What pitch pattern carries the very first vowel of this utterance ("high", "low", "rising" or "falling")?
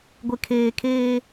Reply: low